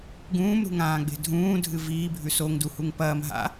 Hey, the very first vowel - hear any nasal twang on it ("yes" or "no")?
yes